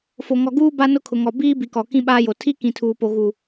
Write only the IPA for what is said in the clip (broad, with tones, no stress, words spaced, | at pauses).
fo˨ŋɔ˨ɡuː˦ ba˦nʊ˦kʰʊ˨ŋɔ˨ biː˦bi˨kɔ˨ kĩ˦ɓaː˦jo˨ tʰi˦kĩ˨ tʰuː˨po˨ɣuː˨